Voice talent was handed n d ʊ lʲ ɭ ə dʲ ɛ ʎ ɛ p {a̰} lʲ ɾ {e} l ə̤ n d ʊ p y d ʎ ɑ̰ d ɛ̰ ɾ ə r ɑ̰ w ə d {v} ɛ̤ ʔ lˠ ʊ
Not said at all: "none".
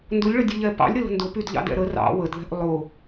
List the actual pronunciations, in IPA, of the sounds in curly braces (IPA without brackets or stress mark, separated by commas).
ɑ̰, ɘ, ð